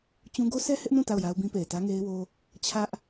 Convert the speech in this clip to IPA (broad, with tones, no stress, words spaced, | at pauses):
t͡ɕũ˦ ɡo˦sʰɛ˦ hɪ˦ʔnũ˦˨ ta˦˨ʊ̯ja˦ʊ̯bĩ˦ pe˨ɪ̯tä˦ŋe˦ɪ̯wo˦ | t͡ɕʰä˦ʔ